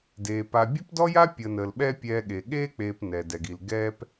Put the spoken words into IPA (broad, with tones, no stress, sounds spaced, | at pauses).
d eː˩ p a˨ bʲ ɐ˥ p d ɔ˥ j a˥ pʲ əː˨ n əː˨ l ɓ ɛː˦ pʲ ɛː˨ ɠ e˩ ɠ eː˦ k͡p eː˨ p n ɛ˩ d ɛ˩ ɡ i˨ l ɡ ɛː˥ p